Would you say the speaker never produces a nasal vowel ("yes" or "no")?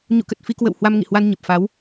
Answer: yes